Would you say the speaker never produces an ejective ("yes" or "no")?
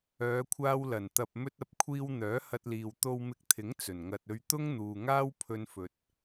yes